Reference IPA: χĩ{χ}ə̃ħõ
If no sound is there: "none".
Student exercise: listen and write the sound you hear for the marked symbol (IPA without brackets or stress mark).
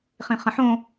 χ